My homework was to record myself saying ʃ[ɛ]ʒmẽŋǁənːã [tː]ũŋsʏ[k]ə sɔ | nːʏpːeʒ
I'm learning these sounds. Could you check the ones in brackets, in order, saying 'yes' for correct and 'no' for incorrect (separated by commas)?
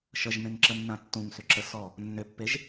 no, yes, no